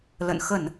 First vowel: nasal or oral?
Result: oral